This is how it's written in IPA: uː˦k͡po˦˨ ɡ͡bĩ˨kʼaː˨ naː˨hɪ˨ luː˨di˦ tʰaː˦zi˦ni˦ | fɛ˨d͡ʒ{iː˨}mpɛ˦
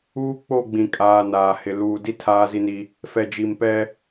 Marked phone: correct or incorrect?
incorrect